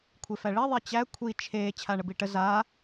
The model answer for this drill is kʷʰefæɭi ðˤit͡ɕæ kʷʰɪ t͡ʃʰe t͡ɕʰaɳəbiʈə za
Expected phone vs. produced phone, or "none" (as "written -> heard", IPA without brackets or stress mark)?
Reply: ɪ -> i